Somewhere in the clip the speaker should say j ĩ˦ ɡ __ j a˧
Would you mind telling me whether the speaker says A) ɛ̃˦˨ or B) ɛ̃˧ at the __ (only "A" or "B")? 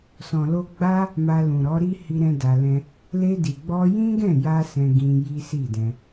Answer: A